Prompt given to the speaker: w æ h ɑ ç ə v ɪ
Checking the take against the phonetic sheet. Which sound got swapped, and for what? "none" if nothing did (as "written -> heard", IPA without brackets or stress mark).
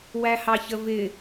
none